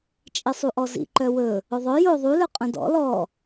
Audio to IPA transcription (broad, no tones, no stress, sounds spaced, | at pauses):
t͡ʃʼ i sˤ u ʔ ɔ z ḭ ǃ œ w ɵ | ɵ ðˤ œ j o ðˤ u l œ qʼ œ̃ d ɔ̰ l ɔ